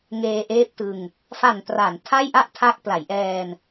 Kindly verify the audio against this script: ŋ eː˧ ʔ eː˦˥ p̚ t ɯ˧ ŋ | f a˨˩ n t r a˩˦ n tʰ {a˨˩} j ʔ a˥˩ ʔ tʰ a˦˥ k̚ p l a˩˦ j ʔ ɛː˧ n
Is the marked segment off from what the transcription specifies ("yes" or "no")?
yes